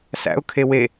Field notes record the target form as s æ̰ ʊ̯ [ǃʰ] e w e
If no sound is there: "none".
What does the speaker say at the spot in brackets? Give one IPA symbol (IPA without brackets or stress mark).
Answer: kʰ